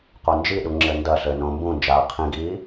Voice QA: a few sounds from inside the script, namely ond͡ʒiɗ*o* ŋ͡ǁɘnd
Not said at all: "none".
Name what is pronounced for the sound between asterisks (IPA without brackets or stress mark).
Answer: u